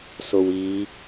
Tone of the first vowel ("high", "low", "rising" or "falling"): low